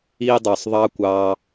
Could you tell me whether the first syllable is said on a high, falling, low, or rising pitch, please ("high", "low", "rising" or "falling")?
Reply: high